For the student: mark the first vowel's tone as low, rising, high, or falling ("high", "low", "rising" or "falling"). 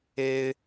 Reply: high